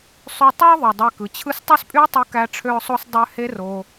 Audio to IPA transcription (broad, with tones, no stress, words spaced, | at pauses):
sˤy˧tˤu˦ə̯ðˤu˨ dˤe˧kɯ˨t͡ɕʰɯ˦s tˤø˦spʼy˦ə̯tˤu˧ kæ˧ʈ͡ʂʰø˧ʊ̯sˤo˧s dˤø˧ he˦ro˧